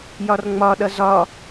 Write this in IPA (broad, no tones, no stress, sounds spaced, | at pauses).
j ɒ r ŋ͡m ɒ ɗ ʌ z ɒ